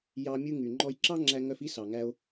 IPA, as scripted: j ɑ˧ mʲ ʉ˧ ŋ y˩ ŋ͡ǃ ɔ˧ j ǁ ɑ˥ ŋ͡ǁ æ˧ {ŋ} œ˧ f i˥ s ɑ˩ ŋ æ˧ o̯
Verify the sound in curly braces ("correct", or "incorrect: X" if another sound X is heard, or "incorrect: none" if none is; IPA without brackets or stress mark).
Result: correct